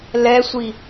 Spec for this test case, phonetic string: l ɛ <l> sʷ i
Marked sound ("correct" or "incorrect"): incorrect